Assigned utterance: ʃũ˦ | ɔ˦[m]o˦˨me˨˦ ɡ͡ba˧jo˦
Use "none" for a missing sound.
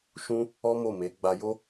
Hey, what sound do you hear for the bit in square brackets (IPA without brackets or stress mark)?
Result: m